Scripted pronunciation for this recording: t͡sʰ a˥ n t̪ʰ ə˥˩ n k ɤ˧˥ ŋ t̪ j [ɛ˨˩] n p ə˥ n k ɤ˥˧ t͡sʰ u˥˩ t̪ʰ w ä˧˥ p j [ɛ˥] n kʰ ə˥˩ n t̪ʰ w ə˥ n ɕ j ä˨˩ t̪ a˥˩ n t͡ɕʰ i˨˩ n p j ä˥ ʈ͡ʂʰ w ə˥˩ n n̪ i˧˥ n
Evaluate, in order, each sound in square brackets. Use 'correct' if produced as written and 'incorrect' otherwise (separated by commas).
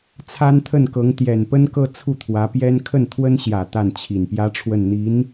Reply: correct, correct